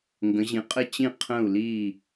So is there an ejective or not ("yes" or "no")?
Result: yes